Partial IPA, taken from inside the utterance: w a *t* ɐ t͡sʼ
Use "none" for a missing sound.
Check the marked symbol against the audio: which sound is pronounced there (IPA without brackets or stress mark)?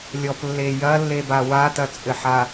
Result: t